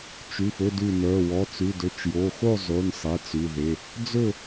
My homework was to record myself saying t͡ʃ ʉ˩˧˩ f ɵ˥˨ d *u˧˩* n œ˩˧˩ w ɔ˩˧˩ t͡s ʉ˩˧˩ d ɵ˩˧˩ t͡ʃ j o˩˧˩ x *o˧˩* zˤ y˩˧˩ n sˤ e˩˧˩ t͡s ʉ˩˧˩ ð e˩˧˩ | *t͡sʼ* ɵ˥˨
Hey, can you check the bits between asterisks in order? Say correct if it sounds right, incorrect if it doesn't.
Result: incorrect, incorrect, incorrect

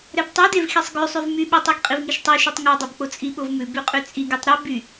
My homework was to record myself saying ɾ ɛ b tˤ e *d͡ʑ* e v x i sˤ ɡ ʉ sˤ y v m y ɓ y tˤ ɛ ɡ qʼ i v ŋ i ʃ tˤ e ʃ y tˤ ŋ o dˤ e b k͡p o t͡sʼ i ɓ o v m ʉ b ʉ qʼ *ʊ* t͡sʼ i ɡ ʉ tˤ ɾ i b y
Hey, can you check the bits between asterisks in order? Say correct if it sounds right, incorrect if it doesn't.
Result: incorrect, incorrect

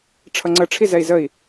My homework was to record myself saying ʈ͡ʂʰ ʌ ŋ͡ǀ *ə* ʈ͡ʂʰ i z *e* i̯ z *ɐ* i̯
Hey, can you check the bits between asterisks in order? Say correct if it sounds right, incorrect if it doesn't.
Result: correct, incorrect, incorrect

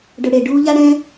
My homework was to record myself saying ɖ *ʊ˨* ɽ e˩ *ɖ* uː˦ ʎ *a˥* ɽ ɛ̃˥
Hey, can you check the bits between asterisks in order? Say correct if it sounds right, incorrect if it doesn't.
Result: correct, correct, incorrect

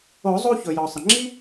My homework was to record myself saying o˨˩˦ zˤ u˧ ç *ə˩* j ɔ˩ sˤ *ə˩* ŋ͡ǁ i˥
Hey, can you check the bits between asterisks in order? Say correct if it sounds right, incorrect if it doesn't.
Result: incorrect, correct

